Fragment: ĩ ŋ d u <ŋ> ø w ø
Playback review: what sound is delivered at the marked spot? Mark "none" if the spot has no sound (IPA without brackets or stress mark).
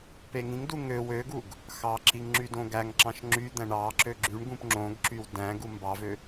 ŋ